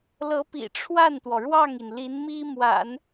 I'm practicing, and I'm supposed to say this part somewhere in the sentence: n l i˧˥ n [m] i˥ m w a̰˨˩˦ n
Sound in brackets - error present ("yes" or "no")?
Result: no